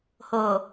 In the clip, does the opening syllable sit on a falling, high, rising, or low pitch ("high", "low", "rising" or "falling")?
low